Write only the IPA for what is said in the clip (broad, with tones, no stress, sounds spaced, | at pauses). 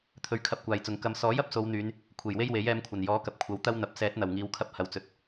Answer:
t̪ʰ ɵ˧ ɥ kʰ ɐ˧ p̚ kʷ aː˨ j t͡s ʊ˨ ŋ k ɐ˧ m s ɔː˨˥ j ɐ˥ p̚ s o˨˧ w n̪ yː˨˧ n | kʷʰ e˨˩ j w e˥ j w e˨˥ j ɛː˧ m kʷʰ ɐ˨˩ n j ɔː˨˥ k ɐ˨ p̚ kʷʰ ɐ˨˥ w t̪ ɐ˥ w n̪ ɐ˨˥ p̚ s ɛː˨˥ t̚ n̪ ɐ˨˩ w ŋ iː˨˧ w kʰ ɐ˧ p̚ h ɐ˨ w t͡s ɵ˨ t̚